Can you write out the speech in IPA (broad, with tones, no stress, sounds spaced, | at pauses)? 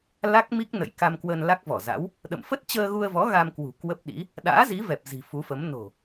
l a˦˥ k̚ m i˦˥ k̚ n ə̰˧˨ j k a˧ m k w ə˧ n l a˦˥ k̚ v ɔ˧˩ z a̰˧˥ w | ɗ ə̰˧˨ m f ə˦˥ t̚ t͡ɕ əː˧ ɣ u˧ ə̯ v ɔ˨˦ ɣ a˧ m k w ṳ˨˩ k w ə˦˥ p̚ ɗ ḭ˧˥ | ɗ a̰ː˧˥ z i˨˦ v ɛ˨˩ p̚ z i̤˨˩ f u˨˦ f ə˨˦ m n o̤˨˩